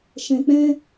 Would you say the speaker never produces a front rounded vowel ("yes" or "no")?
yes